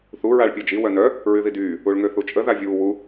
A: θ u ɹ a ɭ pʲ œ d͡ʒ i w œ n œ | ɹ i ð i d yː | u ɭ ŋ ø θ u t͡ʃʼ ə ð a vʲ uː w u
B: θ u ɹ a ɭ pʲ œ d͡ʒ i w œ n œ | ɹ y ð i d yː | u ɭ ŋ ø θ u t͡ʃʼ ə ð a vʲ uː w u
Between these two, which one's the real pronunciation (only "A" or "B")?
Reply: B